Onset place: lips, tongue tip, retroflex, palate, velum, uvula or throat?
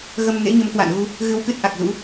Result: velum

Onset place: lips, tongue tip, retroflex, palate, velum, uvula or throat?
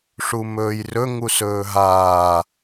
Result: retroflex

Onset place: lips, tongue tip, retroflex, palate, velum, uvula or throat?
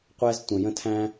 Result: uvula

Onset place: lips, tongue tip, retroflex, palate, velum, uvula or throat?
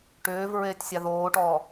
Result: retroflex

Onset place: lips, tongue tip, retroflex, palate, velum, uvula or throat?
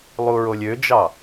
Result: tongue tip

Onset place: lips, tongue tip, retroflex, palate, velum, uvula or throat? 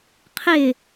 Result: uvula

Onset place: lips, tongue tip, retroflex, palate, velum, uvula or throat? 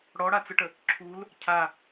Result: retroflex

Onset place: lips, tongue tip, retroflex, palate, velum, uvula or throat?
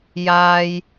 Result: palate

